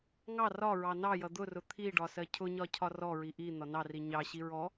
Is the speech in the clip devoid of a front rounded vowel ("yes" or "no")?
yes